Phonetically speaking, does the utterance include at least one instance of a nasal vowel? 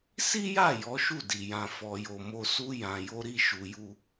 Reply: yes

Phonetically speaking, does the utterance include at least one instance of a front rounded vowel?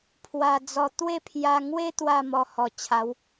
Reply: no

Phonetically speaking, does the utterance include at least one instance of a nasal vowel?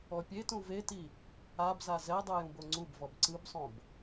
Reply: yes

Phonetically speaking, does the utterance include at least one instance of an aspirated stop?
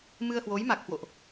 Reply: no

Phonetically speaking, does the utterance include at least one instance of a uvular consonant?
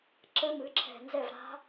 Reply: no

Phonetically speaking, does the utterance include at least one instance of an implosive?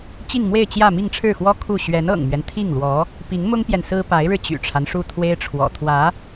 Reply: no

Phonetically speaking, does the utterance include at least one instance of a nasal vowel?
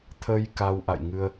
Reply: no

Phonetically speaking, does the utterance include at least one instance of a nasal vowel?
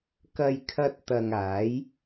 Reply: no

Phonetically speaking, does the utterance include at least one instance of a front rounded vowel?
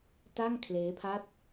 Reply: no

